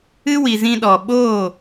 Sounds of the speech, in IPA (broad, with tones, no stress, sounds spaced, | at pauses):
ɨ˦ w i˨ z ĩ˧ ɗ ɔ˨ ɓ oː˦˨